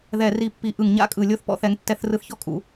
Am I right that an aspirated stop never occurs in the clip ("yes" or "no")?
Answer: yes